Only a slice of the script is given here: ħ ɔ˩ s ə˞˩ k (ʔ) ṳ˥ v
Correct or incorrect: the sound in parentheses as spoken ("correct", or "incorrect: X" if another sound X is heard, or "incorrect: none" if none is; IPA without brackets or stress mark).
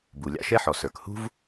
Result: incorrect: h